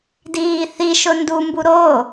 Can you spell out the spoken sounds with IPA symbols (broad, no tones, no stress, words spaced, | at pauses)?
diːθiʃʊ ndumbu ɾo